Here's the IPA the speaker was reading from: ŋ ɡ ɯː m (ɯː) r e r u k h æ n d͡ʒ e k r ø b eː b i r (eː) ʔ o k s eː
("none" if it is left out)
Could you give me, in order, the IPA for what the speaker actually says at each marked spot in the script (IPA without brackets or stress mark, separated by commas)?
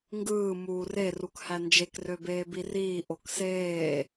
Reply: uː, iː